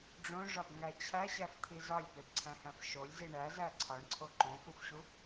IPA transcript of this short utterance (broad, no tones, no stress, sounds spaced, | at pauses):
ɖ͡ʐ õ ʐ ɒ b ŋ æ t͡ɕʰ æ ɕ æ f t̪ʰ i z ɒ lʲ p e b ǀʰ æ̃ h æ̃ f ʃ o lʲ z i ɳ æ z æ ǀʰ ɒ ɳ ǀʰ o ǃ õ f u f ɕ u